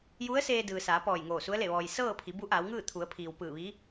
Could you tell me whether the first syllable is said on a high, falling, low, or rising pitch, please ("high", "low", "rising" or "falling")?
rising